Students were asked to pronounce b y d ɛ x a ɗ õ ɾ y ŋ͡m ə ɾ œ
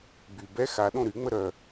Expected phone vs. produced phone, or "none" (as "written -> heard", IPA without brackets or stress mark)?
d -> b